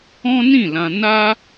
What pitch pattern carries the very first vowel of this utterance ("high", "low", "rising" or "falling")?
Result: high